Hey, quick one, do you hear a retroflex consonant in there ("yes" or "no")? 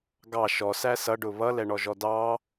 yes